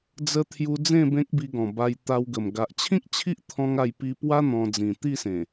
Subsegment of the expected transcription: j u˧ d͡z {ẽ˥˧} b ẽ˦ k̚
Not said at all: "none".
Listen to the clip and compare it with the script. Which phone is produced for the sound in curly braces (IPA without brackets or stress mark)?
ẽ˥˧